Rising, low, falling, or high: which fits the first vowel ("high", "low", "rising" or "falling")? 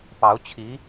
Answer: rising